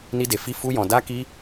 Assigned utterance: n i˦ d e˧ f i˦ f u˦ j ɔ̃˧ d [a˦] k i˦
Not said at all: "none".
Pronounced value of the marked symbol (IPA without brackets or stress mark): a˦